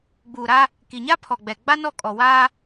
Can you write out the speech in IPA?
ɡ͡b uː˨ ɾ a˦ | k i˨ ɲ a˦ pʰ ɔ˨ ɡ͡b ɛ˨ ɡ͡b a˦ n ɔ˦˨ kʼ ɔ˨ w aː˦

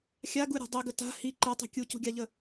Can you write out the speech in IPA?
xʲ a ɡ u ɾʲ o̤ dˤ i ɡ ə t a̤ h i ǃ e tˤ i̤ kʲ u c ṳ ɡʲ a ʎ ə

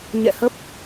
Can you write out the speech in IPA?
ɲ ɛ̰˧˨ h ə˦˥ p̚

